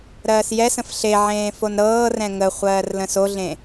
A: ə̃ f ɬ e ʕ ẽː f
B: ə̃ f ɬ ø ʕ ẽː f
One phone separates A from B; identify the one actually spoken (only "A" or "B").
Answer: A